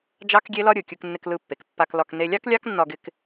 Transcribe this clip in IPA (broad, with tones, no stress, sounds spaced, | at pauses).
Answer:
d͡ʒ ɑ˥ k ɡʲ e˥ l ɒ˥ ɾʲ ɯ˩ kʲ ɯ˧ k nː ɪ˧ k l ɯ˧ pː e˩ k pː a˧ k l ɒ˧ k n e˧ lʲ ɑ˥ k lʲ ɑ˥ k nː ɒ˧ ɡ ɪ˥ k